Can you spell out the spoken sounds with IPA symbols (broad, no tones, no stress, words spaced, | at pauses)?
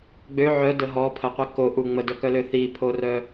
ɡ͡bø ʕœdə ɦɔpʰəqʷi koʔu ŋ͡mədœkœlø θipʰorœ